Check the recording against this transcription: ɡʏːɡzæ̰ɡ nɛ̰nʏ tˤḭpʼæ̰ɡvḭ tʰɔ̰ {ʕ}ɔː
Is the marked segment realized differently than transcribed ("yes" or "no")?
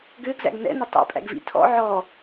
no